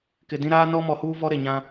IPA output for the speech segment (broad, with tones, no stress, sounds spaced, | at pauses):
k ɪ˨ d ĩ˦ ɾ aː˦ n ɔ˦ m ɔ˨ h uː˦ v ɔ˦ ɾ e˨ ɲ ã˦